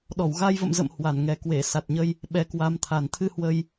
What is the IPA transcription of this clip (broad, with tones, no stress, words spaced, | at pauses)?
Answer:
ɗɔ˧˩wɣa˧jvə̰˧˨m zə̰˧˨m hwa˧˩nŋɛ˨˩ kwe˧˩ sa˨˩t̚ ɲə˧j | ɓɛ˨˦kwa˨˦mt̪ʰa˨˩n t̪ʰɨ˧hwə˧j